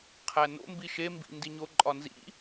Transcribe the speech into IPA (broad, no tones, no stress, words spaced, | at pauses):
qʰæno̰ mbiʃe mbḭndiɲo ǃʼɒnzḭ